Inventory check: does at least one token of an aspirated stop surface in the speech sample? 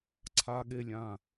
yes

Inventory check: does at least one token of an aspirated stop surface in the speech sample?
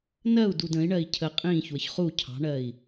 yes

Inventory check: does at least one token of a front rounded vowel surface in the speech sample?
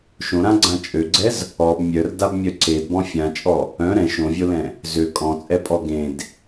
yes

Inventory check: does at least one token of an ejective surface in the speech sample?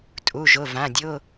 yes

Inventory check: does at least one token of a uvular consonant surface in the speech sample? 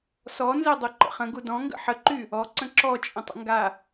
yes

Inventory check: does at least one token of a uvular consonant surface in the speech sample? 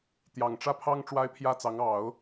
no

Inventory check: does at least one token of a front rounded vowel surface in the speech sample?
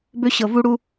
yes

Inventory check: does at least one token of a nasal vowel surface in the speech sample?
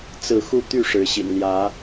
no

